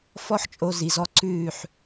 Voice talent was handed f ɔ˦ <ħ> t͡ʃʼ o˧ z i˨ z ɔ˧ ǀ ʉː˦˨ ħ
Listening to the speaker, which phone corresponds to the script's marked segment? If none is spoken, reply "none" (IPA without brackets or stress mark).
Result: ħ